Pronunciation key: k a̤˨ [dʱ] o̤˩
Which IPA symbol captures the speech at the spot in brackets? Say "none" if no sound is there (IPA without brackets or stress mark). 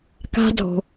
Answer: dʱ